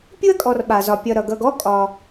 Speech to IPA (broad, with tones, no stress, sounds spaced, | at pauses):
pʲ u˥ ɐ̯ kʼ ɔ˨ r ɓ a˩ z ɒ˩ pʲ ʌ˨ ɾ ʌ˩ ɡ ʌ˨ ɡ ɔ˥ kʼ ɒ˩